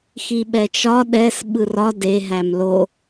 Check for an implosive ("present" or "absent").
present